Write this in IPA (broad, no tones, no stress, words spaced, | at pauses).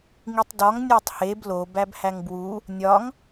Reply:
ŋitˤdɒŋ nʲætˤheb lo bæbhæŋbwu | nʲɒŋ